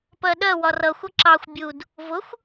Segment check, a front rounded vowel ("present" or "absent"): absent